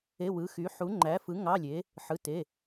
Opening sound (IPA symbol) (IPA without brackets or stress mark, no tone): e